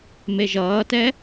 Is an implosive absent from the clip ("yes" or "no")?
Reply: yes